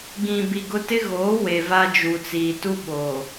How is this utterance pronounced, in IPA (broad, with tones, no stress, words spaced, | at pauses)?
ɡĩ˨bi˨ɡʊ˦ tɪ˦ɣoː˨˦ we˨va˦d͡ʒu˨ t͡siː˨tu˦ ɓo˨